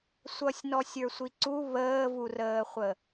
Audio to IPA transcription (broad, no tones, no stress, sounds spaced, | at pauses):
sʷ ʌ sʲ n ɔ sʲ ə˞ sʷ i ǀ u β əː v u r əː χʷ ə